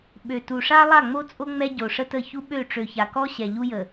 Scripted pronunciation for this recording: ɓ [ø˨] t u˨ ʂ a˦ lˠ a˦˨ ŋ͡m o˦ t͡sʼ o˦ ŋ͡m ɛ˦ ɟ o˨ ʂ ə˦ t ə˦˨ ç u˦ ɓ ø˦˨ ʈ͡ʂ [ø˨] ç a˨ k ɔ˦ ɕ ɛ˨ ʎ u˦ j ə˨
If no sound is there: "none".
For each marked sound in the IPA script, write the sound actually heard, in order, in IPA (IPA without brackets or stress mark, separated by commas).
ø˨, ø˨